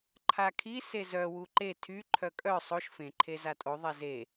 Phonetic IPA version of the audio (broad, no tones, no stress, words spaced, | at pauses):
ǃʰakʰi sezœ wuǃe tʰy ǃʰœkʼœ sˤoʃ fẽ ǃʰezatʼo ðˤɛze